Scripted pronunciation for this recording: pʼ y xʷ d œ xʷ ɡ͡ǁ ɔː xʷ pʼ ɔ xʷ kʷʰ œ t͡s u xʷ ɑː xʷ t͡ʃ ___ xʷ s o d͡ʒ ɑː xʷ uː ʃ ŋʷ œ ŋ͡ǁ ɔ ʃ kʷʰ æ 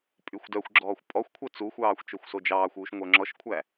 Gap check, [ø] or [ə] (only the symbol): ø